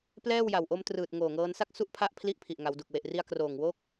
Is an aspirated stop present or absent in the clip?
present